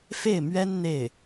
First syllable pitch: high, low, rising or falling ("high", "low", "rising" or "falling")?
falling